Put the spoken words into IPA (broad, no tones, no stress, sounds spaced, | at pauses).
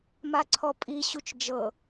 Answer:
m a ǀʰ ɔ pʼ i ɕ u t͡ʃ d͡ʒ ɤ